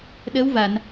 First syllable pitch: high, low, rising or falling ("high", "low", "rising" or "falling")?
rising